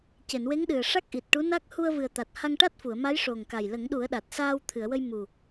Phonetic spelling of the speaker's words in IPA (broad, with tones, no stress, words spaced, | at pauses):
ce˨˩˨nwe˧˥ŋɗɨ˨˩ə̯ ʂa˦˥k̚ʔi˨˩t̚ʈu˧˥na˦˥k̚ hu˧ə̯vɨ˨˩ə̯t̪a˨˩t̚ ha˧ŋʈa˦˥t̚fu˨˩˨ə̯ma˧˥j ʂo˨˩ŋka˨˩j lə˨˩˦ŋɗu˨˩˦ə̯ɗa˨˩t̚saː˧w t̪ʰɨ˨˩˨ə̯wə˧j mu˨˩